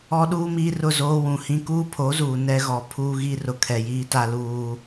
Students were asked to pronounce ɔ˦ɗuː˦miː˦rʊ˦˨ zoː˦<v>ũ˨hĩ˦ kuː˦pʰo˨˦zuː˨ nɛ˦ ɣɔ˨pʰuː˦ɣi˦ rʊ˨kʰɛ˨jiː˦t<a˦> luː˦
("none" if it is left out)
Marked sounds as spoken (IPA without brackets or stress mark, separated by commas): w, a˦